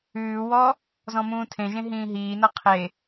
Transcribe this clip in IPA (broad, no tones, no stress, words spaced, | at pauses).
ʉːwɔ | zɔ̃mũːtʰẽʒẽ ɦĩːɦiːnʌ qʰe